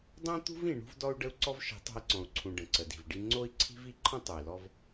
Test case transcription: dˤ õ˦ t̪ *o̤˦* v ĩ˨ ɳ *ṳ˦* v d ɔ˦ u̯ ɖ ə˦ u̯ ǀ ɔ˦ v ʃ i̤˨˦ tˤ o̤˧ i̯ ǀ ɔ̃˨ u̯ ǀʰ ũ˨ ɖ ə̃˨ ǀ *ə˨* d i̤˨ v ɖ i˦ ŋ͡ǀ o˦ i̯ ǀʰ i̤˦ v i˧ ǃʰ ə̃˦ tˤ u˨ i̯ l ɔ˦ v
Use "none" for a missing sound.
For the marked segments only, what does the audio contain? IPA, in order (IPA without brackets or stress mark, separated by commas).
ṳ˦, ṳ˦, ə˨